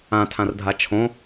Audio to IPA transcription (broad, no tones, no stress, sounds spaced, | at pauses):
ã tʰ ã r dʱ a t͡ʃʰ õ